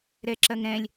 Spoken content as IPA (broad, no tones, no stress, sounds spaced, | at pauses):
ɾ ɛ ǁ ɐ ŋ ɾ ɛ̃ lʲ